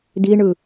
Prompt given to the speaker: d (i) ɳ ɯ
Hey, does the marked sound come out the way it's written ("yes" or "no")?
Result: yes